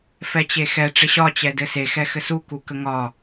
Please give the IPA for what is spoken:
f ɛ t͡ɕ e x ɛ ʈ͡ʂ ɪ ɕ ɒ t͡ɕ ɛ d ɘ s e x ɛ x ɘ s u k u k ə ŋ ɒ

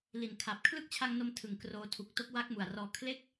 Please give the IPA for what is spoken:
l i˨˩ n kʰ a˨˩ p̚ kʰ l ɯ˦˥ k̚ t͡ɕʰ a˧ ŋ n o˧ m tʰ ɯ˨˩ ŋ k r oː˧ tʰ u˨˩ k̚ t o˦˥ k̚ w a˦˥ k̚ m u˨˩ a̯ r ɔː˧ kʰ l e˦˥ k̚

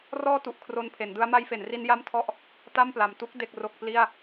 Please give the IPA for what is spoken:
r ɔː˥˩ t u˨˩ ʔ kʰ r o˧ n pʰ e˩˦ n d ɯ˦˥ a̯ m a˦˥ j f e˩˦ n r i˦˥ n j a˥˩ m tʰ ɔ˥˩ ʔ | t a˥˩ m p l a˨˩ m t u˥˩ k̚ d e˥˩ k̚ r o˥˩ k̚ p l i˥˩ a̯

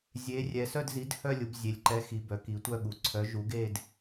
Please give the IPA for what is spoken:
zʲ e˩˧ rʲ ɛ˩˧ s œ˥˧ d z i˨˥ d h œ˥˧ lʲ u˩˧ b zʲ e˩˧ lʲ ǃ ɛ˨˥ x i˩˧ b œ˩˧ k i˩˧ tʷ œ˥˧ ɠ u˩˧ ǀʰ œ˨˥ ʒ u˨˥ ɡ e˥˧ d

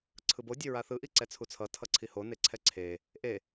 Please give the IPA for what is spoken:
ǀʰ ɯ b o dʲ e ɹ a θ ɯ ʔ i ǀ ɛ t͡sʰ u t͡sʰ ʌ tʰ ʌ ǀʰ i h o n e ǀʰ ɛ ǀʰ e | ʔ e

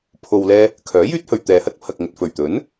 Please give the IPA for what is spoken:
pʰ o˨ w l ɛː˧ | kʰ œː˨˥ j yː˥ t̚ h ɵ˨ ɥ t̪ ɛː˨ h ɐ˥ t̚ pʰ ɐ˨ k̚ ŋ ɵ˨ t̚ f ɵ˨˩ ɥ t̪ ɵ˨˥ n

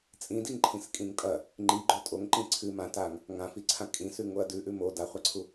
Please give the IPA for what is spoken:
t͡sʼ ĩ d i ŋ ǃʰ ĩ s kʼ ĩ ŋ tʼ ɐ | ŋ͡ǃ i ɡ͡ǃ o tʼ o ŋ ǃ ĩ ǀʰ ɨ m ã t a ŋ | ŋ ã f i ǀʰ ã kʼ ĩ s ʉ ŋ o ɐ̯ d ʉ ʔ ʉ m o d a χʷ a ǀʰ u

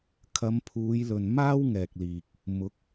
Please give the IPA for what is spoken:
kʰ ɐ˨˧ m pʰ uː˨˧ j l ɵ˨ n m aː˥ w ŋ ɛː˨ k̚ l iː˨ k̚ | m ʊ˨˥ k̚

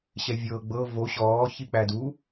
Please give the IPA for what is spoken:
ɕ ɛ vʲ ɤː ɡ͡b ɤ v o ɕ ɔː ç i k͡p æ d u

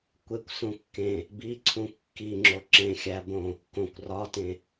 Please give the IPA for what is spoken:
kʷ e kʷ s ũ kː ẽ | b i ǀʰ ũ kː i ŋ͡ǁ o ǁ ẽ xʲ æ b õ | k õ kʷ r ɒ t ẽ

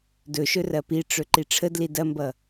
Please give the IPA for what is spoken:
d ɵ ʃ ɵ r ɐ p i ʈ͡ʂ ɵ ǃ i ʈ͡ʂʰ ə d l i d ɐ m b ʌ

